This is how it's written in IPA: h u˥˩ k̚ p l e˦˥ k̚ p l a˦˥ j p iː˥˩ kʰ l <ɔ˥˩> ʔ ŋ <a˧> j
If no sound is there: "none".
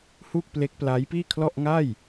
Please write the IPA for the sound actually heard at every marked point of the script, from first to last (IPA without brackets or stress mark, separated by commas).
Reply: ɔ˥˩, a˥˩